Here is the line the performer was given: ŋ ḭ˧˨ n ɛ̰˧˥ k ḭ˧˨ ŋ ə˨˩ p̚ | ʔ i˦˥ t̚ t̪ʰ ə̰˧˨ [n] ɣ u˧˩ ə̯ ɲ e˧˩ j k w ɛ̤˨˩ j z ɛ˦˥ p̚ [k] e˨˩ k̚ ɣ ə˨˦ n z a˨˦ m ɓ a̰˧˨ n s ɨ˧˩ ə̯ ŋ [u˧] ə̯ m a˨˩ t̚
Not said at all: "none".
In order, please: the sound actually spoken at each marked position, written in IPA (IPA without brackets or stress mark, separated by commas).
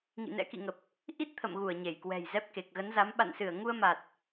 m, k, u˧